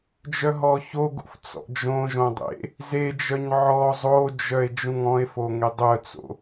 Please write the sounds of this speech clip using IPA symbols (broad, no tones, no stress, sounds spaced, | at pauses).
d͡ʒ œ ɦ ɔ ç o ɡ ṵ f t͡s ɔ̰ d͡ʒ õ ʒ õ dˤ ḛ | z e d͡ʒ œ ɲ ʕ ɔ zˤ o d͡ʒ œ e̯ d͡ʒ ũ ŋ ɔ̃ e̯ f o ŋ e dˤ œ t͡s o̰